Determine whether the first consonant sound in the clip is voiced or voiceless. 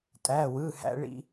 voiceless